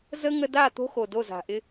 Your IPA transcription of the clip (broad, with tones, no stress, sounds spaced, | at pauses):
z ə˦ ŋ ə˦ d a˦˨ t̪ o̤˦ x o˨ d o˦˨ z a̤˨ ʔ ɪ˦